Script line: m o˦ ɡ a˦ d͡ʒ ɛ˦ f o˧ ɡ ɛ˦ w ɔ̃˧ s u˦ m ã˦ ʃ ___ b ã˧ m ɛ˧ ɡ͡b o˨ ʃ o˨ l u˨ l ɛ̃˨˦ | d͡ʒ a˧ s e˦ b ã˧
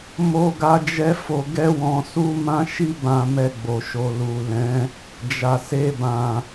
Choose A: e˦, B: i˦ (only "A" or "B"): B